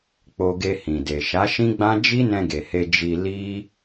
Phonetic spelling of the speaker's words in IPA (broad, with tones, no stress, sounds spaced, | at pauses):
k͡p o˧ ɡ e˧ h ĩ˨ d e˨ ʃ a˨˦ ʃ ĩ˦ ɡ͡b ã˦ d͡ʒ i˦ n ɛ̃˧ ɡ e˨ h e˧ d͡ʒ i˧ l i˦